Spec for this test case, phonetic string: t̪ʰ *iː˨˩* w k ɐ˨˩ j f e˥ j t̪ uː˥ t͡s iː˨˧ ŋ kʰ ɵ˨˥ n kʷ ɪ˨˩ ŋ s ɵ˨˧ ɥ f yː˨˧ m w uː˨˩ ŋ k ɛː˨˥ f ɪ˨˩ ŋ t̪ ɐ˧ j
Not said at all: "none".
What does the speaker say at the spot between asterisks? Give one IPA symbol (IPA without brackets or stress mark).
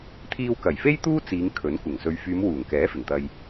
iː˧